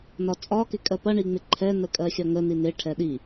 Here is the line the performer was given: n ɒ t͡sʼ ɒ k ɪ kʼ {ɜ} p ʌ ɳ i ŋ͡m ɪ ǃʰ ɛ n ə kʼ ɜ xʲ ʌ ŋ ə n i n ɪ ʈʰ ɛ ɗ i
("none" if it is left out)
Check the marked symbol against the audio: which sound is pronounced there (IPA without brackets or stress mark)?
ɜ